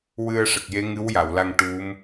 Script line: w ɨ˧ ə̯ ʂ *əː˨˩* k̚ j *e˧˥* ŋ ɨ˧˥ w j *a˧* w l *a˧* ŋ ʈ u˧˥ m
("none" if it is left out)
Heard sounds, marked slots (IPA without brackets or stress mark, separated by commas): ə˨˩, e˧˥, a˨˩˨, a˧